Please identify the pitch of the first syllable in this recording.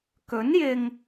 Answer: rising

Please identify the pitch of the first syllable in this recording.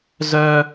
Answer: high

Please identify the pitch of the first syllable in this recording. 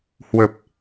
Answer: low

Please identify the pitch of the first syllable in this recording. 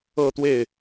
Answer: falling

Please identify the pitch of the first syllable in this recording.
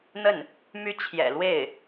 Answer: falling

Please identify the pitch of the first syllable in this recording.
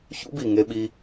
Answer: high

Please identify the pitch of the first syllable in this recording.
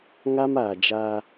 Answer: high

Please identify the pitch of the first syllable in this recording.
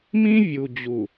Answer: high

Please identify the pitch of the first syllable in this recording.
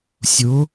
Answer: rising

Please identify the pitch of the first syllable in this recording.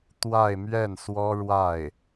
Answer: falling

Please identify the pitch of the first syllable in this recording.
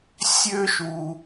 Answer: high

